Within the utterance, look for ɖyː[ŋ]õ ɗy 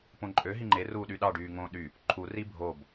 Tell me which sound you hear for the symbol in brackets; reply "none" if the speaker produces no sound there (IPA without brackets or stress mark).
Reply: ŋ